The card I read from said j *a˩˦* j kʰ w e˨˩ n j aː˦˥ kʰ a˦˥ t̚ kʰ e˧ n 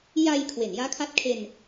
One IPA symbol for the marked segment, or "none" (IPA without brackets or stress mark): a˧